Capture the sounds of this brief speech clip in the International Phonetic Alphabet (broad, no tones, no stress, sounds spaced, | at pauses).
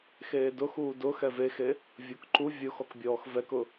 x eː d ʊ x uː d ʊ x ɛ v e x e | vʲ ʊ k ǃ u vʲ ʊ x ɔ k bʲ ɔː x v ɛ k ʊ